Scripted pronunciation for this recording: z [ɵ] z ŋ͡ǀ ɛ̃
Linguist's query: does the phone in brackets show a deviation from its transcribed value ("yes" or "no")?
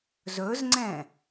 no